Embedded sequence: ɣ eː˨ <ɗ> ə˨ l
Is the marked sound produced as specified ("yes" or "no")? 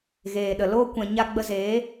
yes